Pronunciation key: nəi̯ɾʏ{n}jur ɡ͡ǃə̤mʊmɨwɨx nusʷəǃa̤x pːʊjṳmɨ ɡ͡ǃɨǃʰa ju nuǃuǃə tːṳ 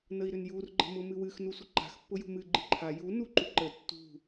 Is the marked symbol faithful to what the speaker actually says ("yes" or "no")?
yes